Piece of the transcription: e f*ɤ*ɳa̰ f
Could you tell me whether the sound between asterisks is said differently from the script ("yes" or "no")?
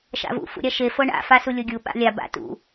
no